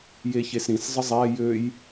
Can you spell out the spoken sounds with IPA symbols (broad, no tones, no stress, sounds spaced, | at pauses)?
j e ç e s ɾ ĩ s zˤ ə zˤ ɛ j ø j